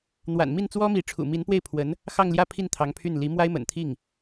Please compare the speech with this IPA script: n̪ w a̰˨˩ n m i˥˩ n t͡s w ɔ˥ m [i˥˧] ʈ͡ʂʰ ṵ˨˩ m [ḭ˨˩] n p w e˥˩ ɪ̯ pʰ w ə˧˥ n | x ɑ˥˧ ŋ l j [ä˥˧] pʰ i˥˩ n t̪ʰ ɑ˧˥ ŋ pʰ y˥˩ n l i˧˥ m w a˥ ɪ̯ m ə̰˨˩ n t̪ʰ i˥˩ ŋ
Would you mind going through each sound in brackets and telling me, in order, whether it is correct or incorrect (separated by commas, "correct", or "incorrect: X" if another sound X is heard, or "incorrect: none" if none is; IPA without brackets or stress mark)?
incorrect: i˧˥, incorrect: i˧˥, correct